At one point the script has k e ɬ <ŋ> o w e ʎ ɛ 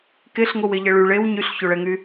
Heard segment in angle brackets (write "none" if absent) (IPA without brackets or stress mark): ŋ